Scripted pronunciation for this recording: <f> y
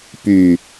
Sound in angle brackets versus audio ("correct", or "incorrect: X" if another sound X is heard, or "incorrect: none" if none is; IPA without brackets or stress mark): incorrect: p